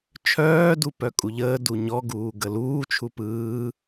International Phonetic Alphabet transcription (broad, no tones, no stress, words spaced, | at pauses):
t͡ʃʰœːdu pœkʼuʎəː duɲɔɡuː ɡəluː t͡ʃʰupɯː